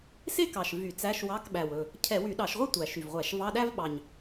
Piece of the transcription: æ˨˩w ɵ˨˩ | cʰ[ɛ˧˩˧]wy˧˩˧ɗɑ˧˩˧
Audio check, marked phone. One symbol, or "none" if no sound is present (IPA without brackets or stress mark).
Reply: ɛ˧˩˧